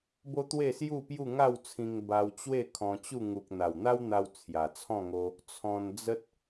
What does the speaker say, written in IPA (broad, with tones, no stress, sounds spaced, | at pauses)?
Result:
b o˦ t̪ w e˥˧ s j u˥˧ p j u˥˧ ŋ a˥˧ w t͡sʰ ĩ˧ ŋ b a˧ w t͡ɕ w e˥˧ kʰ ɔ̃˧ t͡ɕ u˥˧ ŋ u˨ k̚ n̪ a˨˩ w n̪ a˦ w n̪ a˧ w t͡sʰ j a˨˩ t͡sʰ ɔ̃˥˧ ŋ o˧ | t͡sʰ ɔ̃˧ n d͡z ə˦ t̚